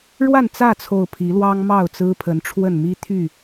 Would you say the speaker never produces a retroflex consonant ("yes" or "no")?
no